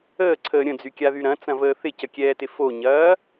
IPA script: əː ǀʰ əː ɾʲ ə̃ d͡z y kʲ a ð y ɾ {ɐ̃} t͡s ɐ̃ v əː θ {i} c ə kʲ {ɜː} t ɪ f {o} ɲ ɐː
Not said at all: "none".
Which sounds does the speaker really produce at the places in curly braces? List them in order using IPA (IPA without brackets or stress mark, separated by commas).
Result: ɐ̃, ɪ, ɛː, o